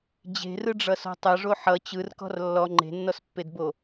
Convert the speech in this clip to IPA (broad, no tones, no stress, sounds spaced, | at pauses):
d͡ʑ e̤ r ɯ ɖ͡ʐ ʌ s ɔ̤ tˤ ʌ ʐ o ħ ʌ t͡ɕ ɯ r k ɔ̤ r lː ɔ ŋ͡ǃ e̤ nː ɔ s pː e d b o